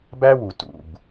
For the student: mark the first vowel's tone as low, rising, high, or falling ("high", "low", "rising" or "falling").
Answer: high